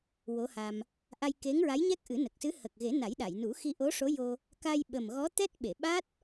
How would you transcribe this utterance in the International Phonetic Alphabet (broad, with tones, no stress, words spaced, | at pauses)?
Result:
wo˧˥ha˧m | ʔa˧j ke˧˥ŋɹa˧˥jɲɛ˦˥k̚ ʔɨ˨˩˦nə˨˩k̚sɨ˧˥ hə˨˩k̚ɣe˨˩˦ na˨˩˦jɗa˨˩˨jnu˨˩˦xi˧ ʔo˧˥ʂo˧˥jo˧ | ka˧j ɓə˨˩m ɣɔ˧˥t̪ɛ˦˥t̚ɓe˨˩˨ ɓa˦˥t̚